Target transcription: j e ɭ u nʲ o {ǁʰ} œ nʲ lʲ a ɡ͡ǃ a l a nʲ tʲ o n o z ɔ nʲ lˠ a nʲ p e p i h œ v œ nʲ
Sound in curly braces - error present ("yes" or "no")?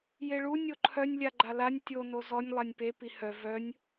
yes